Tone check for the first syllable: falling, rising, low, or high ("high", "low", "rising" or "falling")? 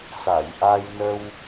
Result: low